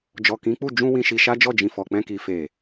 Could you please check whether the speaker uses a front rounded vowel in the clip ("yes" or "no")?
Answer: no